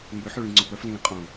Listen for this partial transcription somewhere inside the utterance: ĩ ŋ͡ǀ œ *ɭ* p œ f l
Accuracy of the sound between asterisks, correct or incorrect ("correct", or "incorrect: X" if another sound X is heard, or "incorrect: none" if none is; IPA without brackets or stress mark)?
incorrect: none